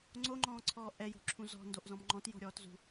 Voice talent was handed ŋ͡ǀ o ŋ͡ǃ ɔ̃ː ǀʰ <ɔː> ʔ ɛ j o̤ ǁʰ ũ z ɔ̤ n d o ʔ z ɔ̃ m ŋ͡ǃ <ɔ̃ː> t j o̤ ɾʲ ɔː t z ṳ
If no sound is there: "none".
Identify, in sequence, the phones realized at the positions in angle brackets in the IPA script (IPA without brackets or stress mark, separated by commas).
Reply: ɔː, ɔ̃